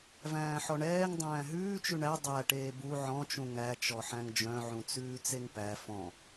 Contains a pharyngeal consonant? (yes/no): yes